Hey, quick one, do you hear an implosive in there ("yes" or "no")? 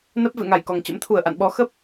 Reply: yes